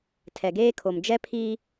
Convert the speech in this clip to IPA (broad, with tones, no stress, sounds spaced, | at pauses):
tʰ ɛ˨ ɡ eː˦ kʰ o˨ m d͡ʒ ɛ˦ pʰ iː˦